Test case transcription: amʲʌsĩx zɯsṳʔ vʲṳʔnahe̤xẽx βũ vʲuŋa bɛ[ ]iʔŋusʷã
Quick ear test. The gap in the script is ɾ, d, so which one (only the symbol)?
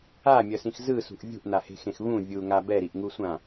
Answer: ɾ